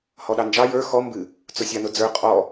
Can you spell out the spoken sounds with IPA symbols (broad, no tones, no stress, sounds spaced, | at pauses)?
h ɔ ɗ ɑ n d͡ʒ ɑ j ə˞ x ɔ m b ɨ | t͡s ʊ sʲ a n ʊ d͡z ə˞ qʼ ɔ